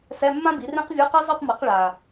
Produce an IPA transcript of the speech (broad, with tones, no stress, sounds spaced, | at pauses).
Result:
s ɛ˧˥˧ mː ã˥ b i˩˥ r ẽ˥ q vʲ u˧˥˧ q i˥ zˤ ɯ˥˧ tˤ m ɯ˩˥ q ɭ a˨˩